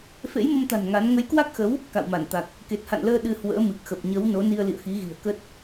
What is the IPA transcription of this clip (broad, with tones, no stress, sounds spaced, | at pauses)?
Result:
f ḛ˧˥ j m ə˧ m t̪ a̤˨˩ n ŋ a˨˦ n ŋ ə˨˦ j k w a˦˥ k̚ x ə˨˦ w | k a̰˧˨ w m a˧˩ n t̪ a˨˩ k̚ | k e˨˩ t̚ h a̰˧˨ n l əː˧ ɗ ɨ˧ h w ə̰ː˧˥ m ɨ˨˩ k̚ x ə˨˩ p̚ ɲ ə˨˦ w n o˨˦ n i˧ ə̯ l ḭ˧˨ ə̯ x i˨˦ ɣ i̤˨˩ ə̯ k ə˦˥ t̚